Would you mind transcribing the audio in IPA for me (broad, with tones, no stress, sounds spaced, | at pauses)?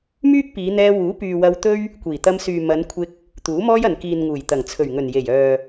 m yː˥ k̚ p iː˨˧ n̪ ɛː˧ w uː˨˥ p yː˨ w ɐ˧ w t̪ ɵ˥ ɥ | kʷ iː˨˩ t̪ ɐ˧ m s yː˨ m ɐ˨˧ n kʷʰ ɪ˧ k̚ | t̪ uː˨˥ m ɔː˥ j ɐ˨ n k iː˨ n ŋ uː˨˩ j t̪ ɐ˨˩ ŋ t͡sʰ ɵ˨˩ ɥ ŋ ɵ˨˩ n j e˨˩ j œː˨